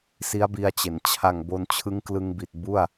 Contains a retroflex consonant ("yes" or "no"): no